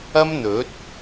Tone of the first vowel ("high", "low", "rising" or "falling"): high